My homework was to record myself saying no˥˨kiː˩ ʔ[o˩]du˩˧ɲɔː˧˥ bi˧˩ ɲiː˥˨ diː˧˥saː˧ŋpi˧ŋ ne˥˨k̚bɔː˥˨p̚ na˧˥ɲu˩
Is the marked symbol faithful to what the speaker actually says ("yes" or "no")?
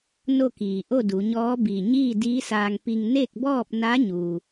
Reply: no